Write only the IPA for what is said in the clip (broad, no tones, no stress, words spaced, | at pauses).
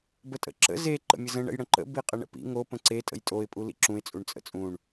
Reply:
bətʼə̰ǁə̰ ze ǃə̰mʲəzə̃ ɳə̰jɽə̃ǃə̰ biqʼəɳə̰pḭ ŋo pə̃ǀe tʼə̰jtʼoɪ̯ pʼulḭǁũɪ̯ t͡sʼuɳt͡sʼə̰t͡sʼũɳ